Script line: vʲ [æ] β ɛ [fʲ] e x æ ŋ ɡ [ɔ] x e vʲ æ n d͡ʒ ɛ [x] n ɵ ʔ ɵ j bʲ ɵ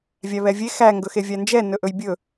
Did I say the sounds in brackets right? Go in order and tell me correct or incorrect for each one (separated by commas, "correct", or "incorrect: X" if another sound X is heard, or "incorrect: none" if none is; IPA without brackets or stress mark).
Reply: correct, incorrect: vʲ, incorrect: ɵ, incorrect: none